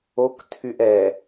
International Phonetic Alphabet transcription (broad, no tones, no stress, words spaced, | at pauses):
oktʰyʔ ɛ